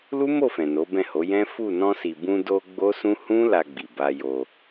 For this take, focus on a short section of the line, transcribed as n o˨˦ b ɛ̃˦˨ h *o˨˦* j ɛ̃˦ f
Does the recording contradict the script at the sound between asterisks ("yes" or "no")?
no